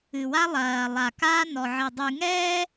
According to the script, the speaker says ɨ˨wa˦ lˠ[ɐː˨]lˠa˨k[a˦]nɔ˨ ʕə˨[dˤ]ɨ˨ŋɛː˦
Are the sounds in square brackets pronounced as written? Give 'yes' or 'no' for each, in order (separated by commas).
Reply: yes, no, yes